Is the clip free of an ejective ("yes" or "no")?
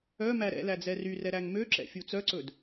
yes